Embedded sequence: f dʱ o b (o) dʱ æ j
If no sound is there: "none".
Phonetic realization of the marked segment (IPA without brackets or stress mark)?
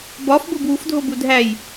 u